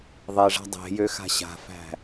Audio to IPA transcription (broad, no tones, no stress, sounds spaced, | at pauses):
ðˤ e ʐ a̤ dˤ e̤ j ø x a̤ ɕ a̤ f æ̤